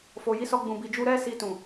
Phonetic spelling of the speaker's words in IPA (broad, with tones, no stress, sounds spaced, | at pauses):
f o˨ j i˨˦ s ɔ˧ ɡ͡b ũ˨ b i˨ d͡ʒ u˧ ɾ ɛ˦ s i˧ t ũ˨